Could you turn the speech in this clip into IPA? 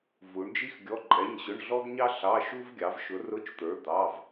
v u˨˥ ɳ d͡ʒ i˥ x ɡʲ ɔ˧˥˧ ǃʼ ɛ˧˥˧ ɲ ɕ ʊ˧˥˧ ɳ ɮ ɔ˥ ɡ ɲ ɑ˥ ɬ ɑ˧˥˧ ʃ u˥ v ɡʲ ɑ˨˥ v ʃ ʊ˨˥ r ʊ˧˥˧ t͡ʃ t̪ ə˞˨˥ d̪ ɑ˧˥˧ v

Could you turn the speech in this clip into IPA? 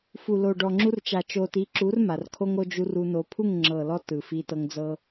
f u˨ l o˨ ɖ ɔ˨ ŋ͡ǁ u˧ r t͡ʃ a˨ t͡ʃ o˨ t i˨˦ ǁ u˨˦ r m a˨ r kʰ o˦ ŋ o˧ d͡ʒ u˧ r u˧ n o˧ pʰ u˦˨ ŋ ŋ͡ǁ ɤ˨ l ɔ˧ t ɯ˨ f i˧ t ɤ˧ ŋ d͡z ɤ˦

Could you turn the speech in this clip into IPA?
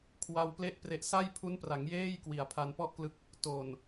kʰ w a˧ w p l e˥˩ ʔ p r e˦˥ ʔ s a˥˩ j pʰ u˦˥ n p r a˩˦ ŋ j eː˥˩ j k w i˨˩ a̯ pʰ a˧ n p ɔ˥˩ ʔ k l ɯ˦˥ k̚ | t oː˨˩ n

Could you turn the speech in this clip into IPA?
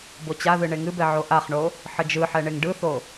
b o t͡ɕ a ð ɨ ɳ e ŋ ɨ b ɛ ʕ o ʔ a χ ɳ o | ħ ə d͡ʒ ɯ ħ ɛ ɳ e ŋ ɖ ɯ θ o

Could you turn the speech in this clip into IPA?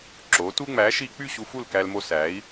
ǁ o˨˦ t u˦ ŋ͡m æ˨˦ ʃ i˦ k͡p y˦˨ ɕ u˧ f u˦˨ l k æ˧ l m o˧ s æ˨˦ i̯

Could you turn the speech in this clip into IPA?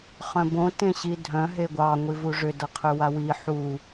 χ œ̃ b õ t ẽ ɕ i dʱ œ̃ ɦ e ɡʷ ɑ ŋʷ i v u ʐ ʏ d ʌ qʰ ʏ w a w i ħ u

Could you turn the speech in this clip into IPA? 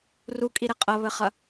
r u kʼ i ɾ e qʼ ɐ β ɘ χ ɐ

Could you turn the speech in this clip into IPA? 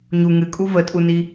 ɲ u ŋ ɨ kʼ u v ə tʼ u n i

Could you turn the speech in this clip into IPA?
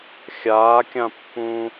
xʲ aː kʲ ã pː ũː

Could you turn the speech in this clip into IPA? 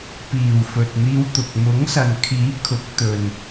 p iː˨˩ w f ɵ˨ t̚ n̪ iː˧ w t̪ ʊ˨ k̚ m ʊ˨˥ ŋ s ɐ˨ n kʰ iː˨˥ kʰ ʊ˨˥ k̚ t̪ ɵ˨ n

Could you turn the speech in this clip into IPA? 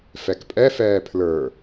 f ɛ k pʼ ɛ f ɛː pʰ l ə˞

